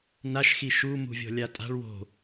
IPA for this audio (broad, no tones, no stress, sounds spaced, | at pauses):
n a ʃ x i ʃ u m ṳ vʲ ɔ̤ lʲ a tʼ a̤ ɭ w o̤